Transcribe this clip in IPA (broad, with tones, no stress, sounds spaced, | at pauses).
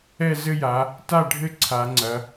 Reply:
ɛ˥˨ z ɘ˥˨ j a˩˧ | t a˥˨ ɖʱ ɘ˥˨ ǀʰ a˩˧ ŋ͡ǀ ɐ˩˧